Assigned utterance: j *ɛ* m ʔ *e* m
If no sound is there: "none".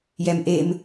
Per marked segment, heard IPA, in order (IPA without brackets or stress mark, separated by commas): ɛ, e